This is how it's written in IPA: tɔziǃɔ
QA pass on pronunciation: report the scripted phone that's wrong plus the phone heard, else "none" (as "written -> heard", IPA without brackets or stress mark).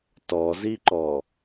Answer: none